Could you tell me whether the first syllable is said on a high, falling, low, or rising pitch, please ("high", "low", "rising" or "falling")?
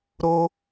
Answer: high